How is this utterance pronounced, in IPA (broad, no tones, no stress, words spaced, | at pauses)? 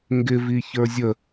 ŋɡɪvi çə˞zʲə